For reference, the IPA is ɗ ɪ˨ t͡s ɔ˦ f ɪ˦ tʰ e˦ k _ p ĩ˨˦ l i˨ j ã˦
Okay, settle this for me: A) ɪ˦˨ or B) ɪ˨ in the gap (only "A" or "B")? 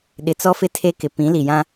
B